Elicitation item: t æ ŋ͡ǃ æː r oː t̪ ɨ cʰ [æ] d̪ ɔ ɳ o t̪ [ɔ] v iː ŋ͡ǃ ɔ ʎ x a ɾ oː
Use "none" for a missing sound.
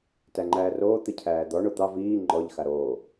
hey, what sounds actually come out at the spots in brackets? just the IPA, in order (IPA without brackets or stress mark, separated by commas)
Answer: æː, ɑ